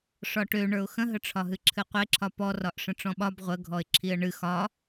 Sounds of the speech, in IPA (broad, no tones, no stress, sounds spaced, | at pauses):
ʂ ɒ ʈ ø ɳ ə˞ ʊ̯ x ə̃ ɦ ə ʈ͡ʂʰ ɒ ɦ ɨ ǁʰ ɨ qʷ e ǁʰ ɒ p ɔ r ɒ ʔ ʂ ə̃ ʈ͡ʂ ɔ̃ ɓ ɒ b ʁʷ ə ɡʱ ɔ ɪ̯ ǁʰ i ə̯ ɳ ɨ x ɒ